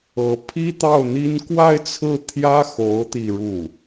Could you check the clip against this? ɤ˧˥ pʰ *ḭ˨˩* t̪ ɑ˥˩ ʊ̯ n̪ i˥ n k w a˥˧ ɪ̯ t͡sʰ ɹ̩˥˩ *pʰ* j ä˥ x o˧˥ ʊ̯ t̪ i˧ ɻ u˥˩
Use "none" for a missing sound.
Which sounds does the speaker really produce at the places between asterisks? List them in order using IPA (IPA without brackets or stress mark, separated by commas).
i˥, t̪ʰ